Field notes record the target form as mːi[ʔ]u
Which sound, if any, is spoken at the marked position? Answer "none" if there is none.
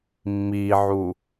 ʕ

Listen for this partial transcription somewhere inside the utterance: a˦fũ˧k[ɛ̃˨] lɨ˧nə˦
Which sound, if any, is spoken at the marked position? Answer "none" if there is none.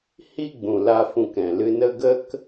ɛ̃˨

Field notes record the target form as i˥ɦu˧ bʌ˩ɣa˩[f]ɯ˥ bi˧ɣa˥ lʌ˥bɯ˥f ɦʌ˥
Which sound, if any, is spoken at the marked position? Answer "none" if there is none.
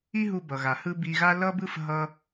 h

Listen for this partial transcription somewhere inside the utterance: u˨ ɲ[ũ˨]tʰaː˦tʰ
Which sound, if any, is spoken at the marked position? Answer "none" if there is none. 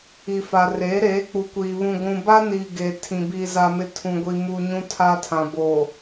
ũ˦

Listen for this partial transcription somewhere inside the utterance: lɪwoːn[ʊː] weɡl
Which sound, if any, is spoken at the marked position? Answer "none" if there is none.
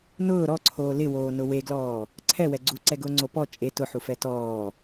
ʊ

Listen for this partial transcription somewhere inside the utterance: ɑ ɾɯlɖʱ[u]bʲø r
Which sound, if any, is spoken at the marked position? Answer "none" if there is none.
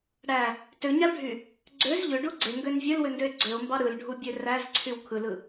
u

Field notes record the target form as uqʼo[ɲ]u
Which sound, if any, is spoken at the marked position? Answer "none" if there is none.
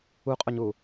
ɲ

